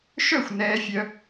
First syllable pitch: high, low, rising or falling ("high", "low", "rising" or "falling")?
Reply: falling